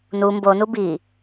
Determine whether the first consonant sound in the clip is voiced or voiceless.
voiced